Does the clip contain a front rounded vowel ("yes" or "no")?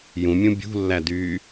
yes